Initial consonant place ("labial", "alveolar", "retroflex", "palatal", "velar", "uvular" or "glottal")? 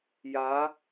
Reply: palatal